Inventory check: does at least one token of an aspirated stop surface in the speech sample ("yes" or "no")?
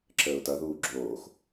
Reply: yes